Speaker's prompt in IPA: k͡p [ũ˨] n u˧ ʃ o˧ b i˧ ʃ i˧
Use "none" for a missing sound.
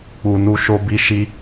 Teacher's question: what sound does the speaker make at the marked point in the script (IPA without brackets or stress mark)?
u˨